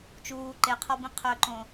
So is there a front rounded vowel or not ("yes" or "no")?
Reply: yes